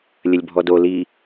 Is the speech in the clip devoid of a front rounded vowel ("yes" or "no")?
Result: yes